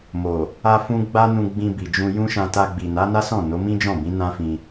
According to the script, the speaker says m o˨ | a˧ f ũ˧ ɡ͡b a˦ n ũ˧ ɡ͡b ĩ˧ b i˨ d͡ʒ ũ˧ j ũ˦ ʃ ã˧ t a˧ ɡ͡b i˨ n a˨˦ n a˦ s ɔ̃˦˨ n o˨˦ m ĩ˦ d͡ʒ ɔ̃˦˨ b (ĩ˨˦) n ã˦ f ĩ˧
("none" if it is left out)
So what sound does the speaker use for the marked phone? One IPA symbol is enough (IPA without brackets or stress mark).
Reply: ĩ˨˦